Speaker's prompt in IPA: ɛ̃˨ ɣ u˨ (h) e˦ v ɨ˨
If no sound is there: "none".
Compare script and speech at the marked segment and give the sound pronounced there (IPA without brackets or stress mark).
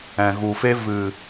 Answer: f